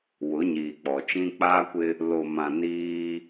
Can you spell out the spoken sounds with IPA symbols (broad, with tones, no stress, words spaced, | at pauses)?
wʊ˨˦ɲiː˨k͡pɔ˨t͡ʃĩ˦ k͡paː˦kʷɪ˦ | lo˨mã˨ niː˦